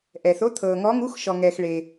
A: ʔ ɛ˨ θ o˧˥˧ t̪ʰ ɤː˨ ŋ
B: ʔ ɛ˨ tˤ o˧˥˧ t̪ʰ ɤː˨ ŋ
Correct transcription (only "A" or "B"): A